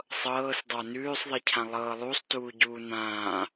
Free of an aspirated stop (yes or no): no